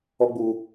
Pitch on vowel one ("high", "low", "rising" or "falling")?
high